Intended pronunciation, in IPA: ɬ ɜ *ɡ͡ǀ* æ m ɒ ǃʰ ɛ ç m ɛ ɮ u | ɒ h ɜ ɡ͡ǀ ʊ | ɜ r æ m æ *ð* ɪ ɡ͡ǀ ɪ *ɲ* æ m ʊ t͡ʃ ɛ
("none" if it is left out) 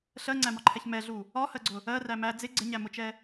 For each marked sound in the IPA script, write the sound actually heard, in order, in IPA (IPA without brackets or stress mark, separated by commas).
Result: ŋ͡ǀ, d͡z, ɲ